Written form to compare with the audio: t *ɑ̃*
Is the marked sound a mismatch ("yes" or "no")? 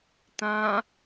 yes